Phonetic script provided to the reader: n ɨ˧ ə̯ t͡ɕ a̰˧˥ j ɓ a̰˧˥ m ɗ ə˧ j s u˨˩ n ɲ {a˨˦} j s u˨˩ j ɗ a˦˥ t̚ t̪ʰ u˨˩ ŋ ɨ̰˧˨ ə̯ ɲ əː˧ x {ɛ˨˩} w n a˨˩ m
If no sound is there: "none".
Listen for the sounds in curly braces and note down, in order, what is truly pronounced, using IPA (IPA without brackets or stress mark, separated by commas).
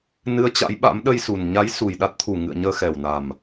a˨˦, ɛ˨˩